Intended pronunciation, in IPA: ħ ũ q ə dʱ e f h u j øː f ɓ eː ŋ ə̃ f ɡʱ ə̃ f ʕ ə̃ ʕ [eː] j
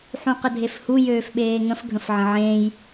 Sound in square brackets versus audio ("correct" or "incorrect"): incorrect